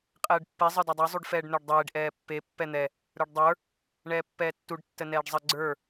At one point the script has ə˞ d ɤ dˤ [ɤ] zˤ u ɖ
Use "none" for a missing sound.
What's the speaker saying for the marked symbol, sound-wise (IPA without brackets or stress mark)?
ə˞